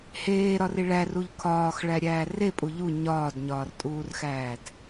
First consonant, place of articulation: glottal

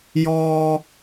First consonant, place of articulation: palatal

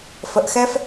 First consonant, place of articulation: labial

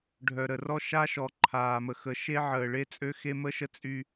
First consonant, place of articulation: retroflex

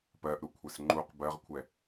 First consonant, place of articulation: labial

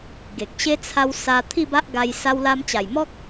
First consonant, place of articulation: velar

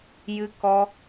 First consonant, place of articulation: palatal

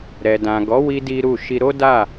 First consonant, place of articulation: alveolar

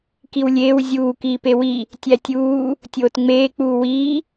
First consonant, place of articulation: velar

